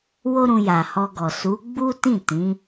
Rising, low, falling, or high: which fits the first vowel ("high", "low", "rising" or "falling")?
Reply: high